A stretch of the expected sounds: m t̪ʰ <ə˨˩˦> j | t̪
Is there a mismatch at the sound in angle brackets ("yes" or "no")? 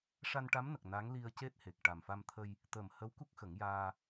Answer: yes